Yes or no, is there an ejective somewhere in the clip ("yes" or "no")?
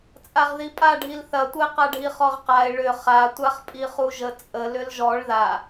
yes